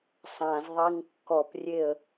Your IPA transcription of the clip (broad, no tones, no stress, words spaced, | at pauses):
sˤãzðˤeŋ kːɔprʲeə̯